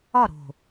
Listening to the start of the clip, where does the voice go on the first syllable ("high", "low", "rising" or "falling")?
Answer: falling